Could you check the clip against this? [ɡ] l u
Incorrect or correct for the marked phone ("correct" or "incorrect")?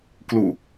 incorrect